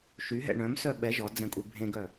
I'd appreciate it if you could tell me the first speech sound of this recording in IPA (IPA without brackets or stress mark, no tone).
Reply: ʃ